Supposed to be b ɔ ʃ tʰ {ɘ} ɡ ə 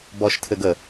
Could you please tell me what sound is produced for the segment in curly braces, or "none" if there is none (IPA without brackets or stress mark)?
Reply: ɘ